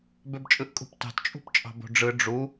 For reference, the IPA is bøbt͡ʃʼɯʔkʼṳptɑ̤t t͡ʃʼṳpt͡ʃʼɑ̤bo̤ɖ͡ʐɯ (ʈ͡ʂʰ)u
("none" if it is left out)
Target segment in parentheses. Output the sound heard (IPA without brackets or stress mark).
ɖ͡ʐ